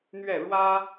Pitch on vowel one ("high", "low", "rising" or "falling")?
falling